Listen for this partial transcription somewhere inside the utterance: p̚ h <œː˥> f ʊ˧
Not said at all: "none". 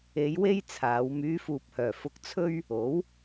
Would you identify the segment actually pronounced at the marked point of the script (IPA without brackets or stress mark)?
œː˨˩